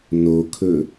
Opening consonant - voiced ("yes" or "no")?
yes